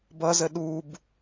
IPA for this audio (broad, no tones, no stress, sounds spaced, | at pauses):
b ʌ z ə ɗ u b